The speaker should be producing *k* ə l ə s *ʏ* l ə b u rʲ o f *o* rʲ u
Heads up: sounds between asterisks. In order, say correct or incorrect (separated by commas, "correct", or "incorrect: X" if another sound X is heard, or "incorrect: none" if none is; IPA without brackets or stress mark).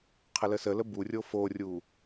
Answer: incorrect: qʰ, incorrect: ə, correct